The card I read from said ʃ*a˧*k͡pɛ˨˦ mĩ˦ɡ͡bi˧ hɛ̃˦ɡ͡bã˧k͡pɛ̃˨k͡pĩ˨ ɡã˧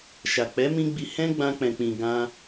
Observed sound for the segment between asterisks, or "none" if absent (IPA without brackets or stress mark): a˨